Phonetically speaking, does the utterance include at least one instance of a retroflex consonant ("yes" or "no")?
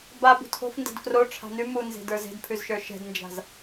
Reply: yes